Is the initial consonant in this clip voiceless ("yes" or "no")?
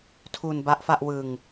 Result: yes